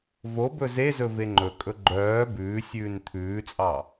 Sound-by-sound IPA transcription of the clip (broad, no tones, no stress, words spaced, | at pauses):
vo bɵzezɵ veŋ͡ǃɵkʼɵ ɡ͡ǃœː bʉːsʲʉːn t̪ʰʉːt͡sʼɑ